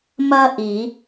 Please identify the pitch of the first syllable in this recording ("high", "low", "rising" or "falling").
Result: high